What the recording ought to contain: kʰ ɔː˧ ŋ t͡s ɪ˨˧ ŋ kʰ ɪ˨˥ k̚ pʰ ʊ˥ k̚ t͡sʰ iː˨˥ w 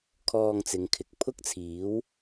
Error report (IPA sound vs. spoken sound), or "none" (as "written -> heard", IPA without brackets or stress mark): none